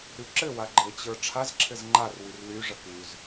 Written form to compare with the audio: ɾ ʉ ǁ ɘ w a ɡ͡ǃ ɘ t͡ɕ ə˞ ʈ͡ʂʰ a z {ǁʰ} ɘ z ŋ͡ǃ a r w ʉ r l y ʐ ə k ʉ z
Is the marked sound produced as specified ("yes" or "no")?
yes